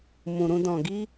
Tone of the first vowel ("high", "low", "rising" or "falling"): low